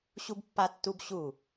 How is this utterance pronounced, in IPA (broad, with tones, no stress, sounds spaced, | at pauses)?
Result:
ɕ u˥ b pː a˥ tː u˥ b ɕ u˥˩